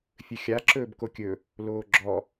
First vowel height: mid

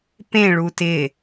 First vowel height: mid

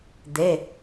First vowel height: mid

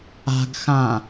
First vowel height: low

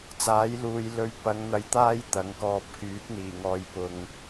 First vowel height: low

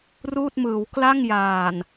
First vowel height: high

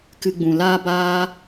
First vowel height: high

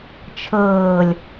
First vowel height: mid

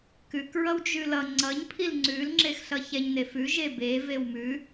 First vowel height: high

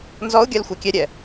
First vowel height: mid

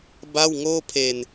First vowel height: low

